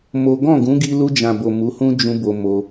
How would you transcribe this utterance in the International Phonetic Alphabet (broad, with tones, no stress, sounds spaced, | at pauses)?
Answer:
m o˦ ɡ ɔ̃˦˨ ɡ ũ˨˦ ɡ i˧ l u˧ d͡ʒ ã˨ b o˨ m u˨˦ h ũ˦ d͡ʒ ũ˧ b o˧ m o˧